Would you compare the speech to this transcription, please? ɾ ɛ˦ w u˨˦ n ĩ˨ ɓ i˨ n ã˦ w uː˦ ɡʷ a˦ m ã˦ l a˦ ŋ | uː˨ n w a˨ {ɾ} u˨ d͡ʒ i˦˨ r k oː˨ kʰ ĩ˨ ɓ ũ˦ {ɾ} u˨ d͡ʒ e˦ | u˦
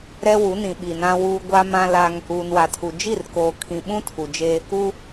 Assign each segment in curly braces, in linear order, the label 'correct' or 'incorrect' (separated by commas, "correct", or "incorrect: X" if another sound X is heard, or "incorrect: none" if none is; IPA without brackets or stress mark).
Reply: incorrect: tʰ, incorrect: tʰ